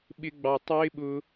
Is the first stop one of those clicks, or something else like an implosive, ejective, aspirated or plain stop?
implosive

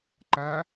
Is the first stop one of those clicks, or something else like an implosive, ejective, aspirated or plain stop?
click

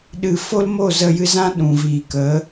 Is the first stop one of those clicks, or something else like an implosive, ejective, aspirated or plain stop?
implosive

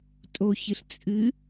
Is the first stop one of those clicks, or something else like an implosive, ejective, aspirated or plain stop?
ejective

